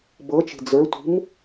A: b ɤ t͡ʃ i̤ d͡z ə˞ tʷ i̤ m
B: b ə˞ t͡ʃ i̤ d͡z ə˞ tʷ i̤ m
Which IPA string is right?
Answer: A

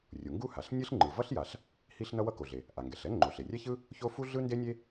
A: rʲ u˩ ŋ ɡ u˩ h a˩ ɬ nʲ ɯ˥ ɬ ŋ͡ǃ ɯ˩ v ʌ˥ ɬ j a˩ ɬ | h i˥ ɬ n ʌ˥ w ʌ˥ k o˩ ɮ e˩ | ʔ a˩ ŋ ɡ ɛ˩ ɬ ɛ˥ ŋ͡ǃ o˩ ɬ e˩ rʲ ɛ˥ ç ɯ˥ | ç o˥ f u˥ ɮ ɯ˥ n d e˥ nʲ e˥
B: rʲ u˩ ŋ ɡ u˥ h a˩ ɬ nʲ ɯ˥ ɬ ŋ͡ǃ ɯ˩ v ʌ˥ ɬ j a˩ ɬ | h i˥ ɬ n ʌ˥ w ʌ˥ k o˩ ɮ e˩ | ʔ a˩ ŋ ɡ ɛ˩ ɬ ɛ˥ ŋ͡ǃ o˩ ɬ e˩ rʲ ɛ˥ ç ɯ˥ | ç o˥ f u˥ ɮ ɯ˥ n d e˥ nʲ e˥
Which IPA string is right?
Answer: B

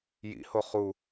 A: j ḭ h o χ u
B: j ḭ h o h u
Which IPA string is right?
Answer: A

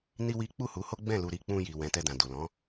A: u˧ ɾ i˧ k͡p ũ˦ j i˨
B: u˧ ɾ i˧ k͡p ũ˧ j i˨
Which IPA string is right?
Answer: B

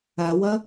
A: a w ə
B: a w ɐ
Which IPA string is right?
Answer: B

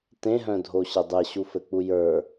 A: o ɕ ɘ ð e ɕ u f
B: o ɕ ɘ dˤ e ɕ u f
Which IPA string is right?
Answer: B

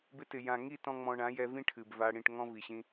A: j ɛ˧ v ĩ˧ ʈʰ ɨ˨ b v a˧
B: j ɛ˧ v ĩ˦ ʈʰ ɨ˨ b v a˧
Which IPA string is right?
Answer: B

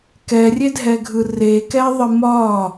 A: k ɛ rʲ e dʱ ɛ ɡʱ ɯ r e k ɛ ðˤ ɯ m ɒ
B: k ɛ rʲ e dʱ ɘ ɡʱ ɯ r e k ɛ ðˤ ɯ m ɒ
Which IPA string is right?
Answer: A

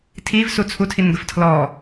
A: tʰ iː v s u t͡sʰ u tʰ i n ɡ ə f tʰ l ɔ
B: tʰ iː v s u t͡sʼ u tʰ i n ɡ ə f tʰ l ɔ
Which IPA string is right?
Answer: A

